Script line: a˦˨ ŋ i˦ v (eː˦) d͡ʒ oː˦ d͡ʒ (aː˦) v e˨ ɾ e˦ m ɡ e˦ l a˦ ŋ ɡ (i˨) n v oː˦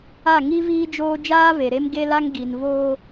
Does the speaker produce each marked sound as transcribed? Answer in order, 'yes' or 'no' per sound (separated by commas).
no, yes, yes